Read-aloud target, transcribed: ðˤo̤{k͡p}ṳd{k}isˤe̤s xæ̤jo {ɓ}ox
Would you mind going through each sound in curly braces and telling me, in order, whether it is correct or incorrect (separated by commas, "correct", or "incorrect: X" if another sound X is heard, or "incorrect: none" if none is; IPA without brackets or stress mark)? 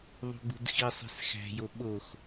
incorrect: ɡ͡b, incorrect: x, correct